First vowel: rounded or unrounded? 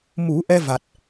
rounded